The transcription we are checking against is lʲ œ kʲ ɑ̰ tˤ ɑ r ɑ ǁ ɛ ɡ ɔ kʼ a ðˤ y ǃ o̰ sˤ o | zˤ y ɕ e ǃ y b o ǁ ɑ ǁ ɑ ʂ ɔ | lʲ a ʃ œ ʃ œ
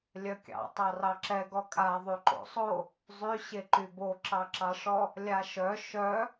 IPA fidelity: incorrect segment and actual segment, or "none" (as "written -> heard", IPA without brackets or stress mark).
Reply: none